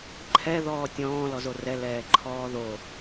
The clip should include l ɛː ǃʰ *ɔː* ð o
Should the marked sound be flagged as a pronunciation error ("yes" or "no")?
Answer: no